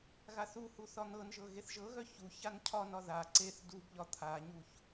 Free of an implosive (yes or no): yes